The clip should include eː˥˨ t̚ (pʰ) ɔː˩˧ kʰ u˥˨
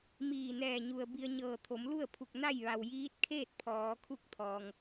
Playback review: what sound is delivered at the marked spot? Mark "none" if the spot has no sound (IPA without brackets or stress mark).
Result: pʰ